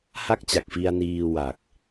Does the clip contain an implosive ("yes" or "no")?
no